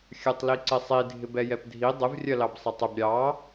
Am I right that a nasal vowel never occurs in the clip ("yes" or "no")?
yes